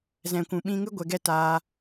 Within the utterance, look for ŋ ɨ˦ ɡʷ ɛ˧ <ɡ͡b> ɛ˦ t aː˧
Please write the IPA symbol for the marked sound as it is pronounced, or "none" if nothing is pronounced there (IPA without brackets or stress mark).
ɡ